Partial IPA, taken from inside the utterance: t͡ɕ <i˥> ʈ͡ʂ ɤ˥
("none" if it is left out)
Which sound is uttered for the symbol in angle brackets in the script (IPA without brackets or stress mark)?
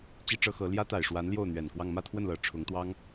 i˥